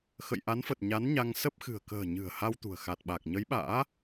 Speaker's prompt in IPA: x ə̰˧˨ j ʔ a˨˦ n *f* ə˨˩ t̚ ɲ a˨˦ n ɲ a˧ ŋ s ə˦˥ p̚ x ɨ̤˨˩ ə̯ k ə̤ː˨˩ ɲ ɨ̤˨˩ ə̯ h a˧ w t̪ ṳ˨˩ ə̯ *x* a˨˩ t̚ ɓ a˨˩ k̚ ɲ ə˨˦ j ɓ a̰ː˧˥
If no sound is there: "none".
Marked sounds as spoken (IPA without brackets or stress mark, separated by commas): f, x